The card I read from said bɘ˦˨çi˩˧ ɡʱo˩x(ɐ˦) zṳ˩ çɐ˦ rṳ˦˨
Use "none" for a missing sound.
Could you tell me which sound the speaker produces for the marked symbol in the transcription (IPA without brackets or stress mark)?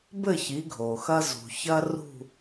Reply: ɐ˦